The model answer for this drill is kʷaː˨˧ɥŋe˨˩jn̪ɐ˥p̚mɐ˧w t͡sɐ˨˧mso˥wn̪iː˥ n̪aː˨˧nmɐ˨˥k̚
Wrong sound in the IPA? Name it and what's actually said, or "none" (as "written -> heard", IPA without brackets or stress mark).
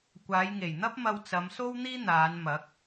ɥ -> j